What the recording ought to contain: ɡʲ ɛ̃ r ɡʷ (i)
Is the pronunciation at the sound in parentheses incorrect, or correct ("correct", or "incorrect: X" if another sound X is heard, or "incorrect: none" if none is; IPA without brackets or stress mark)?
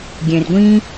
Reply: incorrect: ĩ